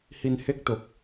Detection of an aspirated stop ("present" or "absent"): absent